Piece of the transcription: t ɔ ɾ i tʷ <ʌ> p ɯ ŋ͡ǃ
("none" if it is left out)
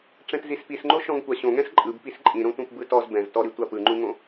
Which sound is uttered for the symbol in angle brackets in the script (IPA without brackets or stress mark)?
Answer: a